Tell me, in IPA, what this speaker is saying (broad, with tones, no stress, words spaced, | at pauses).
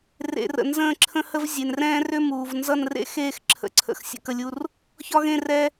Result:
rḛ˨rə̰˨ nzə̃ː˥˧ǁʰə̃˥hə˥v zʲe˨nrɛ̃ː˥rʏ˥muː˨v nzʌ˥˧nrḛ˥ xeː˥˧xǁʰə̰˨ǀʰə̰˨x sʲə̰˥˧kə˥˧lʲu˥r | çɒ˥ɣẽ˥˧ rɛ˥